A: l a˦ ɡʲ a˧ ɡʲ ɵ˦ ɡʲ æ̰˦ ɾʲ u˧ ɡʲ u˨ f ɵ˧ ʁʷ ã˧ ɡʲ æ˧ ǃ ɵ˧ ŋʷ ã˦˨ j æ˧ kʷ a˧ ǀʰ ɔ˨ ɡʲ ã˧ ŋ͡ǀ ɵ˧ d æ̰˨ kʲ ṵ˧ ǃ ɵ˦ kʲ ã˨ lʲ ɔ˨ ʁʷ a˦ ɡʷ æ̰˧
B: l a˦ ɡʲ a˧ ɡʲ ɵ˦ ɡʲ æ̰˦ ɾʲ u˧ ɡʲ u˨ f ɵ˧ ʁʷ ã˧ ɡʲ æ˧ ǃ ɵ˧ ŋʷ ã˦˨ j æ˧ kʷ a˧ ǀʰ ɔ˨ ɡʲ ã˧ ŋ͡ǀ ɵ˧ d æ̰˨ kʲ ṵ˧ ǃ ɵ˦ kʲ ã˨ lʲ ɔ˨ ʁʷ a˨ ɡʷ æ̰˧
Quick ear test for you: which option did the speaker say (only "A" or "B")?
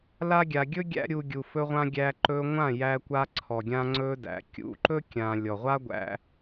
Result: A